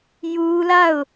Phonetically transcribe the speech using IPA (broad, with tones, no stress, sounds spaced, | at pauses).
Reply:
j u˦ l a˦˨ ʊ̯